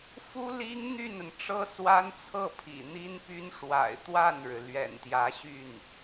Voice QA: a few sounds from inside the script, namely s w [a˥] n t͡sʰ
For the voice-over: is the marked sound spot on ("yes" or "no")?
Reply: yes